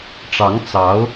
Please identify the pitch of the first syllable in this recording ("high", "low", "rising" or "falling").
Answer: rising